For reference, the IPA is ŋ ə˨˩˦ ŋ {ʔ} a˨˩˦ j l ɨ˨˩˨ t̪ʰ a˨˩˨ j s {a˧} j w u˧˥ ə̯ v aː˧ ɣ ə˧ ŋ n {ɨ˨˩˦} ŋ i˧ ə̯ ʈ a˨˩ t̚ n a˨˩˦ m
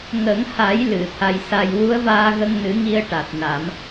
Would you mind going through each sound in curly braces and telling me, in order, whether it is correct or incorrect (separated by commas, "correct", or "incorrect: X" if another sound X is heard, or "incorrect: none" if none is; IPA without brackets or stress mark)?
incorrect: h, incorrect: a˨˩, correct